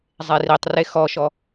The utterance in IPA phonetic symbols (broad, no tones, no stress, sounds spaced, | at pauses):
zˤ e r i tˤ r e x ɔ ʃ ɔ